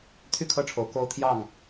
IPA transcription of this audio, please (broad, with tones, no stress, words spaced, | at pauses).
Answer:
t̪ʰy˥˨kʰɤ˥˨ʈ͡ʂʰo˨˦ʊ̯ ko˦ʊ̯t̪ʰjɑ˥˨ŋ